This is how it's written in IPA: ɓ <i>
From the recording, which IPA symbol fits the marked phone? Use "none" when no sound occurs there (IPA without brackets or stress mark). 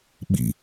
ḭ